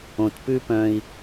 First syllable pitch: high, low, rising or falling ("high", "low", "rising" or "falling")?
low